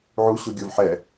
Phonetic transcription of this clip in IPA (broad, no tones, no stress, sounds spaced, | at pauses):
ʕ u ɕ u ɡʲ o v ħ ɛ